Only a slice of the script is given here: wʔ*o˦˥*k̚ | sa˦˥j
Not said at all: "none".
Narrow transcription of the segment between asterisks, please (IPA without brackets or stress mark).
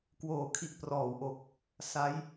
o˨˩